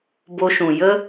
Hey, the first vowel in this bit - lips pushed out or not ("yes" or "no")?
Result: yes